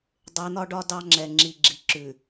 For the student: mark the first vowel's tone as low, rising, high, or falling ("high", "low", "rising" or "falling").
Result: rising